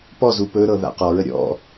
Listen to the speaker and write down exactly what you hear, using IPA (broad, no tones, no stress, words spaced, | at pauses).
pɔzu pɵ ɾɤða̰qɔɹə ɾʲɔ̰